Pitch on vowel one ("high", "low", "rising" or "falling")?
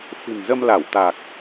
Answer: low